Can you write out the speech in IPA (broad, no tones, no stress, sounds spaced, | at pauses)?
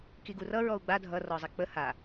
k i ɡ u r ʌ ɹ ɔ u̯ ɡ͡b a dʱ ʌ r ɔ zˤ i k͡p ə h a